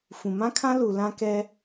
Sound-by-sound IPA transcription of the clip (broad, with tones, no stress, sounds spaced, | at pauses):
f ũ˨ m ã˦ kʰ ã˦ l u˨ l ã˦ k ɛ˦